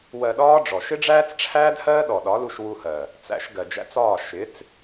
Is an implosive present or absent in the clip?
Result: present